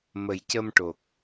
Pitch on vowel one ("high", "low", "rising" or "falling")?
low